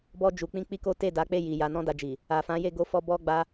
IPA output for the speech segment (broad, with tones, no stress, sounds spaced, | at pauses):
b ɔ˧ d͡ʒ u˨ k͡p ĩ˧ k͡p i˦ k o˦ t e˦˨ d a˨˦ k͡p e˦˨ j i˨ j a˧ n ɔ̃˦ d a˧ d͡ʒ i˨ | a˨ f ã˨˦ j e˦˨ ɡ o˧ f ɔ˧ b ɔ˧ ɡ͡b a˧